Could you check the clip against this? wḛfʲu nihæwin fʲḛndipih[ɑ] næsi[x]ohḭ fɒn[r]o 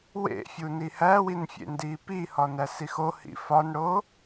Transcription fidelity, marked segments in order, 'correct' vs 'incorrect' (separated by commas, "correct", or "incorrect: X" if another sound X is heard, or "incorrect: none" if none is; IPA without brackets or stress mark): incorrect: ɒ, correct, incorrect: ɽ